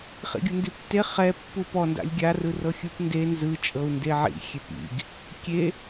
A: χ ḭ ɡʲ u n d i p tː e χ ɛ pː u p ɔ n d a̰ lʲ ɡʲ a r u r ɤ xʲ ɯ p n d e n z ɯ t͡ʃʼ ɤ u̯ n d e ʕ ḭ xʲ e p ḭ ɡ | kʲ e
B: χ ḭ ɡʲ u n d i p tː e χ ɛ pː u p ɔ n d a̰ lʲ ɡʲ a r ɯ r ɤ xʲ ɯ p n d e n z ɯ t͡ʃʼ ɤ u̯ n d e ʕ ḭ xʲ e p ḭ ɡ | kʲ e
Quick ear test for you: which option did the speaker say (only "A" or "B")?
B